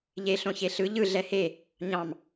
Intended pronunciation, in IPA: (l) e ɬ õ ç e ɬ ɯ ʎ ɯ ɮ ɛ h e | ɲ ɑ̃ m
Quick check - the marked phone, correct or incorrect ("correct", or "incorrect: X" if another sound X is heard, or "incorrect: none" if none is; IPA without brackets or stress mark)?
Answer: incorrect: ʎ